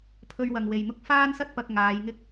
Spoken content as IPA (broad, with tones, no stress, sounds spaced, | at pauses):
pʰ ɵ˧ ɥ w ɐ˨ ŋ w e˨ j n̪ ʊ˥ k̚ f aː˥ n s ɐ˥ t̚ p ɐ˨ k̚ ŋ aː˨˧ j ŋ ɪ˥ k̚